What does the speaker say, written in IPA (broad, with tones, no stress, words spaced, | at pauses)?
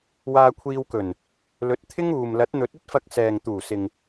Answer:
waː˧kʷʰiː˧wkɵ˨˩n | lɵ˨˥t̚t̪ʰɪ˥ŋuː˨m lɐ˨˥t̚n̪ɵ˨˥t̚ɵ˥t̚fɐ˧k̚ sɛː˨ŋ t̪uː˨˩sɪ˨ŋ